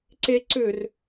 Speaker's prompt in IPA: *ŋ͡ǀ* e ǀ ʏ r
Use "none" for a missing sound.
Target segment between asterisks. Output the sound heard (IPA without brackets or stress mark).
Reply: ǀ